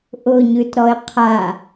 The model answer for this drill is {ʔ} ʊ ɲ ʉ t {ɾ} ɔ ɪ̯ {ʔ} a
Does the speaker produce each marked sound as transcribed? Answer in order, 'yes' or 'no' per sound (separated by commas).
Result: yes, yes, no